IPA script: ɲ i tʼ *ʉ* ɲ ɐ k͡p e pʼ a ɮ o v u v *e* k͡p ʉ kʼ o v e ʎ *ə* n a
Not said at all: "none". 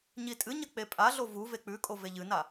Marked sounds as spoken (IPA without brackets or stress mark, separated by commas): ɨ, e, ɨ